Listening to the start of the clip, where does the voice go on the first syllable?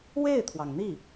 falling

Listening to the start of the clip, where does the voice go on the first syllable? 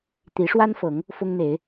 rising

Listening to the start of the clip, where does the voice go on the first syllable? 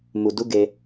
low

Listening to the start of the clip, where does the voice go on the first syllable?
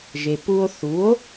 low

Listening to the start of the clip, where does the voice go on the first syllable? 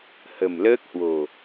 low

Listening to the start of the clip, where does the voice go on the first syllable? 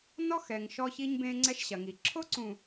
high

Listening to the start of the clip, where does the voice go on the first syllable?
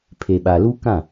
low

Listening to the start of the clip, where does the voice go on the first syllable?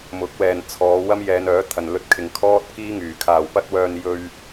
rising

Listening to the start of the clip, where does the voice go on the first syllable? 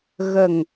low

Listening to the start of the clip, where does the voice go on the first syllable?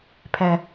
low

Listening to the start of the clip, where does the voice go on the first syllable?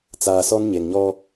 low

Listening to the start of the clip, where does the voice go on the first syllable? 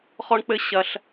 high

